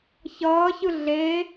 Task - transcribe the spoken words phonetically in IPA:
ç ʌː ç ɯ ɮ e

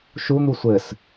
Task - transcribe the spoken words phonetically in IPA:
ʃ u n̪ u sʷ ɘ s

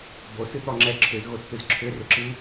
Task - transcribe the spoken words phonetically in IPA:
b o s ɨ t̪ ɔ ŋ͡ǁ ɛ ǁʰ ʏ z ɣ o t t̪ ɨ z ǁʰ ʏ r ʏ ǁ ɨ

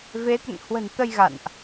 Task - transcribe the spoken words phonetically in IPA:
v e˨˦ t̪ ə̰˧˨ n h w ə̤˨˩ n t̪ ə˧ j ɣ a̰˧˨ n ʔ

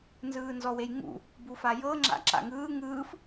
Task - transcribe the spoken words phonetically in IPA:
n z ɯː n z ɔ w e j ŋ ṵ | b u f a j ɤ ŋ͡ǁ a̰ ǁ a̰ ŋ ɯː ŋ ɯː f

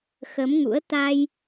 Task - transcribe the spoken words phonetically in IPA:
x ə˨˦ m ŋ ṵ˧˥ ə̯ t̪ a˧ j

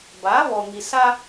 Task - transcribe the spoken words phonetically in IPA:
b a˨˦ β ɔ˨ ŋ i˨ s a˦

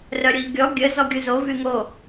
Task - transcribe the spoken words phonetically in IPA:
r œ ɾʲ o ʎ ɡʲ ɔ ɡʲ ə z ɔ ɡʲ u z o v y ŋ o

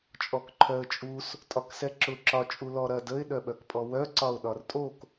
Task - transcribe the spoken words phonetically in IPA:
t͡ʃʼ ɔ k ǃʰ œ ə̯ t͡ʃʼ u s | tʼ ɒ k s ɛ ǁ ʊ ǁ ɒ t͡ʃʼ u l ɔ ɾ ɐ d ə ɪ̯ ɗ œ ɓ œ k pʼ ɔ w œ ǀ ɒ ʊ̯ ɗ ɒ r tʼ o k

